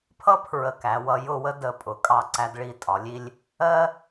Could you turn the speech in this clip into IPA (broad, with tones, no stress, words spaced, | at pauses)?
pʰʌ˥ pʰɹə˧˩kæ˩˧wʌ˧ jʊ˥˧wə˥ də˧˩ pʼʊ˩˧kʼɑ˧˩ǀæ˧d ɭi˧˩tʼɒ˩˧lʲi˧lʲ | ɜ˥